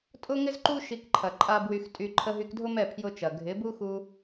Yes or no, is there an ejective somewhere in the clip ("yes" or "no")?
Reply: yes